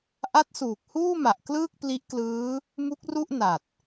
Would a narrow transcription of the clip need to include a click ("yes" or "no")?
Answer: no